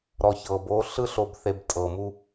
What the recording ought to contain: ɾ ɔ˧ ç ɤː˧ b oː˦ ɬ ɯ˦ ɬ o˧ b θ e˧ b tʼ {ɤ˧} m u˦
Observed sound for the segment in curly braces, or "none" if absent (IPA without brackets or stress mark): ɤ˧